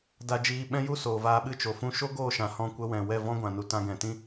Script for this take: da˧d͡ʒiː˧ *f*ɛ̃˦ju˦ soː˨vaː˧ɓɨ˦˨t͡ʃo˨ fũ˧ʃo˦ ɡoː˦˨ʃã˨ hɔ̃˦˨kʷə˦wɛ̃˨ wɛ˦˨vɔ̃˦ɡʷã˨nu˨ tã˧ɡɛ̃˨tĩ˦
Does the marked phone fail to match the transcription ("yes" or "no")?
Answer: yes